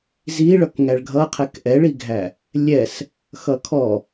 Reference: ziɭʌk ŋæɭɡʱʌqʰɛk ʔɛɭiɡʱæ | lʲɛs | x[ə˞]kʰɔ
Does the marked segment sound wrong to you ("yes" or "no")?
yes